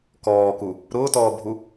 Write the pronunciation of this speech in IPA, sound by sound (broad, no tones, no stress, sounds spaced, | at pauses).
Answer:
k ɔː k u | ɾ ʊː t ɔː bʱ u